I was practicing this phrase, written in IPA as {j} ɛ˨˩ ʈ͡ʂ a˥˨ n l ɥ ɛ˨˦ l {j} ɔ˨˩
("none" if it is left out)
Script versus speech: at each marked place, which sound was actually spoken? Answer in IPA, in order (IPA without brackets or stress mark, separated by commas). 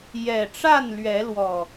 j, w